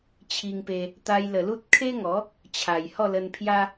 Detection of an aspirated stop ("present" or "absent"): present